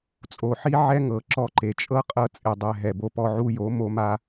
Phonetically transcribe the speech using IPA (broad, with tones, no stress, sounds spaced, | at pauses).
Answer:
t͡sʼ o˨ ħ i˦ ʕ ɛ˦ ŋ ɤ˨ ǁ ɔ˧ ǃ e˨ t͡ʃʼ ɤ˦ qʼ ɤ˦ t͡sʼ e˧ dˤ ɛ˧ ɦ ɛ˨ b o˧ p ɔ˧ ʕ u˧ j o˨˦ m o˦ m a˦